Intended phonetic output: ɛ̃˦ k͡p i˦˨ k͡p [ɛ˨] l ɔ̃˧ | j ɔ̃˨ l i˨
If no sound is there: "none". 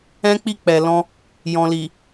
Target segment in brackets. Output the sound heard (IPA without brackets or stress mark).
ɛ˨